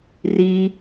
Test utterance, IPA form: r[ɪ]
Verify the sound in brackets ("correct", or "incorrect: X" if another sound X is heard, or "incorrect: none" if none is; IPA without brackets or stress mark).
incorrect: i